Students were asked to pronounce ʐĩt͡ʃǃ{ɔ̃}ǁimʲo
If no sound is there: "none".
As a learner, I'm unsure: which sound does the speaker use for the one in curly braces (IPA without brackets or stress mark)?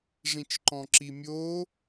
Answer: ɔ̃